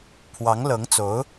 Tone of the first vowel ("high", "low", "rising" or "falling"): rising